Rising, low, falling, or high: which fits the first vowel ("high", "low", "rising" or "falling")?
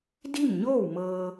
falling